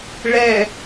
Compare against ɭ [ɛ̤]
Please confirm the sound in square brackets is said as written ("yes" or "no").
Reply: no